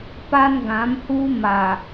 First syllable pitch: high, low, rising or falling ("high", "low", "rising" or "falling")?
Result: high